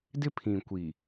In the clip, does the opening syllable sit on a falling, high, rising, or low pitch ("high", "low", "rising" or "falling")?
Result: high